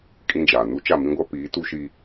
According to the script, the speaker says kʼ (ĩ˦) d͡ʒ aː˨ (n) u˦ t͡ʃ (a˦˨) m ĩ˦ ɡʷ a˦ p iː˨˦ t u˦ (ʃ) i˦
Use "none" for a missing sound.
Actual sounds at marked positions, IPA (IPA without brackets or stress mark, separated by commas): ĩ˦, n, a˦˨, ʃ